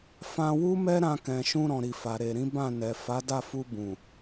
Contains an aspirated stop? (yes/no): no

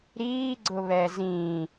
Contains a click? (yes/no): yes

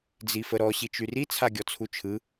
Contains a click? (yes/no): no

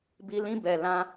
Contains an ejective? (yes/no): no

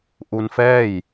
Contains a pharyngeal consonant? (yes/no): no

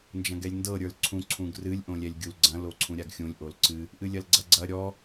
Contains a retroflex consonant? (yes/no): no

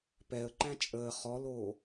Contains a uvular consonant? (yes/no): yes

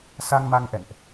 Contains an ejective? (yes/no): no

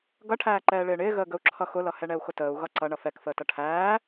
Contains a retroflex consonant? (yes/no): yes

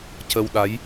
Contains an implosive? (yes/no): yes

